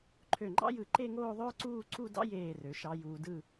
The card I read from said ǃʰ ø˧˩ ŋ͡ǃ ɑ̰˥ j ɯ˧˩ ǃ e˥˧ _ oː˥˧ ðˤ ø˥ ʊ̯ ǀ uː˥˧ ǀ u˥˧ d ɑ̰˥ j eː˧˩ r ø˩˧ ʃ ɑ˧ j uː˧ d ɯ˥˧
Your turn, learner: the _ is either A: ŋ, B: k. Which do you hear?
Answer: A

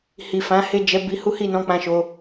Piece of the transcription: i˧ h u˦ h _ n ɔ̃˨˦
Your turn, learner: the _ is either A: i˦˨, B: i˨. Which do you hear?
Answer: A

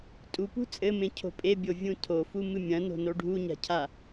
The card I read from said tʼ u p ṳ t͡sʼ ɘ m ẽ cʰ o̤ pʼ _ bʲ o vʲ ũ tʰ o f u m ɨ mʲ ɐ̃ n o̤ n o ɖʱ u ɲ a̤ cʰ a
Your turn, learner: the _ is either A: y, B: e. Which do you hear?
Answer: B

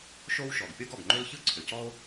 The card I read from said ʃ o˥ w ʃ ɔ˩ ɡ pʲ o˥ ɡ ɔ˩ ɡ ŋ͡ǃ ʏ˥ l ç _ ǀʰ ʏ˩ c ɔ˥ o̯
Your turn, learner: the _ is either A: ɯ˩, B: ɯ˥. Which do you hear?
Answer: B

